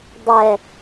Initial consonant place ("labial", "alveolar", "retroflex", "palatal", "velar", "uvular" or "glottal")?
alveolar